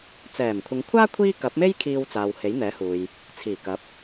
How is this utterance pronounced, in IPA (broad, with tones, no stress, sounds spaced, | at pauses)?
t͡s ɛː˨˩ m kʷʰ ɪ˨˧ ŋ kʷʰ aː˥ kʷʰ iː˥ k ɐ˨˥ p̚ m e˥ j kʰ iː˧ w t͡s aː˨ w h e˨˥ j n̪ ɛː˨˥ h uː˨ j | t͡sʰ iː˨˩ k ɐ˨˥ p̚